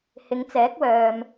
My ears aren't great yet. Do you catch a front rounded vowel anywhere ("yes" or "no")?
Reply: yes